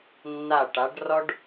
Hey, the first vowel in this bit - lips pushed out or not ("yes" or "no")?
no